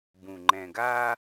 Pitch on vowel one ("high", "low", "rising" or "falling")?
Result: low